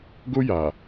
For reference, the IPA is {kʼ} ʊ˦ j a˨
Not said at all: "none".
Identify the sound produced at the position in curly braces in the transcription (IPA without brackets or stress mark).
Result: ɡ